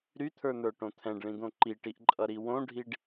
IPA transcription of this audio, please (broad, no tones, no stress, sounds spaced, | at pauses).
ɾ y t̪ʰ ə˞ n̪ ə˞ ʈ õ t̪ʰ ɛ̃ ɖ ɭ ĩ d̪ õ ǃ i ʈ i ʔ ǃʼ ʌ ɾ i w õ ɖʱ i ɖ